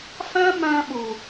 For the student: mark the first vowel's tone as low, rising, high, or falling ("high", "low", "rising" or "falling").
high